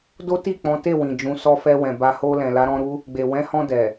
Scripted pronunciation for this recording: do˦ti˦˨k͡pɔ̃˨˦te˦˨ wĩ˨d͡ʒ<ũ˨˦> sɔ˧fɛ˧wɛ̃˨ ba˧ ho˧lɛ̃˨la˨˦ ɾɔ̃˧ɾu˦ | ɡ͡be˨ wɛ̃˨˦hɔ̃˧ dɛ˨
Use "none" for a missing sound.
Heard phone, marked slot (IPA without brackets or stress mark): ũ˨˦